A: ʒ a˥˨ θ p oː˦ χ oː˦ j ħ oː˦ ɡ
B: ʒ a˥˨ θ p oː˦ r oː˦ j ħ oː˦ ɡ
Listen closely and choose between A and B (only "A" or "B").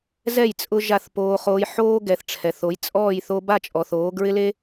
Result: A